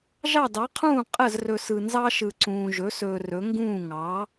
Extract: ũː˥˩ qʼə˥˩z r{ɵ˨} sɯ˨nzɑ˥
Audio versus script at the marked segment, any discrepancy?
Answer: no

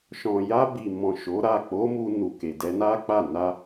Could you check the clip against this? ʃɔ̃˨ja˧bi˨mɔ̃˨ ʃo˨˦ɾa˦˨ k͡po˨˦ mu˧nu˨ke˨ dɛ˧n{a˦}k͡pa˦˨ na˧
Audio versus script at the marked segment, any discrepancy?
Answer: no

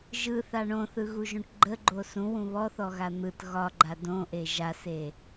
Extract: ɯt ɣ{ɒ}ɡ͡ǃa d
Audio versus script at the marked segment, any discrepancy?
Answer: no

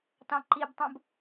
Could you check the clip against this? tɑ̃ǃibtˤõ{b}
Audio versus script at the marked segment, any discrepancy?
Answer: no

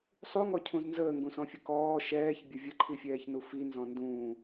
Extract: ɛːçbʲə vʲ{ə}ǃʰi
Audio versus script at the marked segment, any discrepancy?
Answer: no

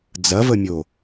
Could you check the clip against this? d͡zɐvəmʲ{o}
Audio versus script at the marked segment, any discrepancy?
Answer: no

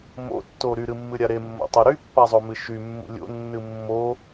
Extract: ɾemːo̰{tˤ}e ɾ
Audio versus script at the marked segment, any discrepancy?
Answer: no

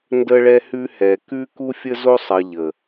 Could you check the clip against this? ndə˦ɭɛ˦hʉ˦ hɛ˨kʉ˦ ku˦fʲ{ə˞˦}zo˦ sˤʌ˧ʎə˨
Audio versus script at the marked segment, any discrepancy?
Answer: yes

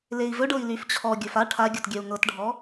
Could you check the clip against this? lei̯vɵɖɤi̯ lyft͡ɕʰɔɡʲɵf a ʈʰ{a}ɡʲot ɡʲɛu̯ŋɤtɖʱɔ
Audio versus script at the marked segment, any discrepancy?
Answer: no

